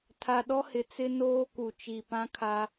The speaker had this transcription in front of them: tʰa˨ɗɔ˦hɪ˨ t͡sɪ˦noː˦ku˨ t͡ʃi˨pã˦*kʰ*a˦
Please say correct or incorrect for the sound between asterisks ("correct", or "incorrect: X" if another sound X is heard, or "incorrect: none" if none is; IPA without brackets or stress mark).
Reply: correct